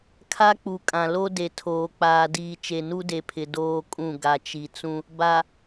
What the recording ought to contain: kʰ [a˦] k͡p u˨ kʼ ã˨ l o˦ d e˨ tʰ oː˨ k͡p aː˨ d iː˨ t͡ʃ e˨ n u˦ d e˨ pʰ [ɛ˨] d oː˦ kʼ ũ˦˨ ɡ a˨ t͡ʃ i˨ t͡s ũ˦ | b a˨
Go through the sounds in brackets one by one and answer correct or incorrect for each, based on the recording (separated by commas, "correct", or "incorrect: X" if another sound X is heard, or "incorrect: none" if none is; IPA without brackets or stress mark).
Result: correct, incorrect: ɪ˨